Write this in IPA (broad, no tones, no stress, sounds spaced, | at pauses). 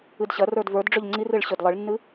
ɨ d ɕ ɐ r ə˞ d v ə˞ d ɖ͡ʐ ʏ ʎ ŋ͡ǀ i r ɨ ɭ ɕ ʏ d lˠ ɨ ɭ nː ɨ